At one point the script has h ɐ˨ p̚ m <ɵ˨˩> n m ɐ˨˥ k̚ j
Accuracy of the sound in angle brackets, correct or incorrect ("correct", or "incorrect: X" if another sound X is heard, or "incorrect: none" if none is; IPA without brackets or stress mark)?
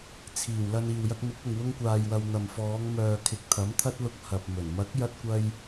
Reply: correct